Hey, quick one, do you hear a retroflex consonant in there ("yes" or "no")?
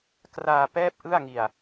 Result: no